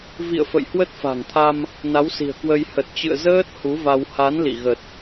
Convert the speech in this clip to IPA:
v ḭ˧˨ ə̯ f ə̰˧˨ j h w ə˦˥ t̚ f a̤˨˩ ŋ t̪ʰ a˧ m | n a˨˦ w s i̤˨˩ ə̯ k w ə˧ j h ə˨˩ t̚ t͡ɕ ɨ̰˧˨ ə̯ z əː˦˥ t̚ h u˨˦ v a˧ w h a˨˦ n l ḭ˧˨ ɣ ə˨˩ t̚

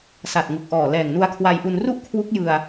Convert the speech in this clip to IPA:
s a˨˩ t̚ ŋ u˨˩ k̚ ʔ ɔː˨˩ l ɛː˨˩ ŋ n u˧ a̯ kʰ w a˧ j ʔ u˧ n r u˥˩ ʔ kʰ w u˦˥ k̚ j ɯ˧ a̯

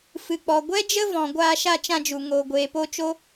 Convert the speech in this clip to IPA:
f ɨ˨ k͡p ɔ˨ ɡʷ ɛ˦ d͡ʒ ə˦ v ɔ̃˨ ɡʷ aː˧ ʃ a˧ t͡ʃ ã˧ d͡ʒ u˨ ŋ oː˨ ɡʷ eː˨ p o˧ t͡ʃ o˦

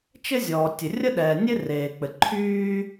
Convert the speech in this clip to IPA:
t͡ʃ ɘ˥ zʲ ɔː˩ tʲ ɘ˩ rʲ ə˥ ɗ ɛː˩ nʲ e˥ r eː˩ k͡p ɘ˩ ǃʰ yː˥

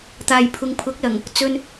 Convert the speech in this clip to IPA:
t̪ aː˨ j pʰ ʊ˨ ŋ pʰ ʊ˨˥ k̚ l ɐ˨˩ ŋ | t͡s ɵ˨ n

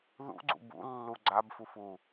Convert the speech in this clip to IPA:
ð ṵ ɡ͡ǀ ṵ b ṵ lː u ɡ͡ǀ a b f u f u

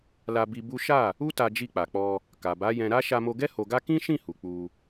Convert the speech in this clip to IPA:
l a˧ b i˧ b u˦ ʃ a˦˨ | u˦ t a˧ d͡ʒ i˧ k͡p a˨ k͡p ɔ˧ | k a˨ b a˨˦ j ɛ̃˧ ɾ a˦ ʃ a˧ m o˧ ɡ ɛ˦ h o˧ ɡ a˦ k ĩ˦ ʃ ĩ˦˨ h u˨ k͡p u˧

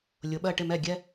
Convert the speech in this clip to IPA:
lʲ ʊ˩ ɓ ɜ˧˩ ʈ ɪ˧˩ m ɛ˧˩ ɡʲ ɛ˧

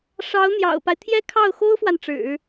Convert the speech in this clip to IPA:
ʂ ɑ˧˥ ʊ̯ n̪ j ɑ̰˨˩ ʊ̯ p a˦ ɪ̯ t̪ʰ j ɛ˥ kʰ ɑ˥˩ ʊ̯ x o˥ ʊ̯ f w a˨ n ʈ͡ʂ ɻ̩˨˩˦

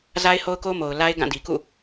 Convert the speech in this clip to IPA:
z a˦ ɪ̯ h o˦ ʊ̯ k o˦ m o˨ ʊ̯ l a˦ ɪ̯ ɡ ã˦˨ d i˨ k ṵ˦˨

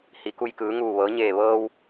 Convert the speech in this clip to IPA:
h i˩˧ k u˧ j k ɯː˩˧ ŋ uː˧˩ ʋ ɤː˩˧ ɲ eː˧˩ ʋ ɤː˧ w

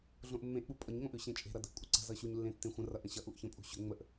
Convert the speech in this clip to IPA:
ɮ õ ʔ mː ẽ ʔ ɓ u pʼ ʌ ɲ ŋ õ ʔ ʉ ɕ ẽ t͡ʃʼ e̤ ɾ ʌ d ə̤ ʔ kʷʼ ə ǀ ə̤ z ʌ ɕ u ɲ lː ẽ tː ẽ xʷ ə̃ r ʌ ʔ ə̃ ɕ ʌ ʔ u ʔ ç ə̃ pʼ ṳ ɕ ʏ ŋ͡m ə ʔ

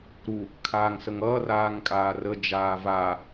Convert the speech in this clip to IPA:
ɾ u | kʰ aː ŋ s ə ŋ ʌː r aː ŋ kʼ aː r ə d͡ʒ aː v a

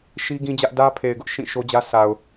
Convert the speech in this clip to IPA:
ʃ i˦ ɡ ĩ˦ d͡ʑ ä˦ ʔ d ä˦ pʰ e˨ ɪ̯ ɡ ʊ˦ ʔ ʃ ĩ˦˨ ʃ o˦ d͡ʑ ä˦ s a˨ ʊ̯

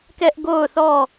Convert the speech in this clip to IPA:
k ɛ˦ ʔ ɡ o˦˨ ʊ̯ θ ɔ˦˨

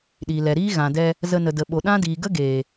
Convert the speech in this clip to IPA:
ɗ iː˨ l ɛ˨ ɾ iː˦ ɣ ã˨ d ɛ˧ | z ə˧ n ə˨ d ə˨ ɓ o˨ ɗ ã˦ d iː˨ ɡ ə˦ ɡ eː˨

